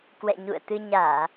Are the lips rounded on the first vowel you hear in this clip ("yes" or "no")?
no